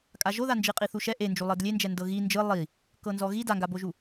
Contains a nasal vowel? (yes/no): no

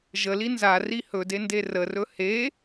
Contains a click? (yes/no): no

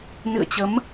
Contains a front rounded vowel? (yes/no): no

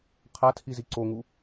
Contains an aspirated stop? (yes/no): yes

